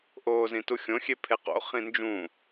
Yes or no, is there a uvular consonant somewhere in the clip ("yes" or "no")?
yes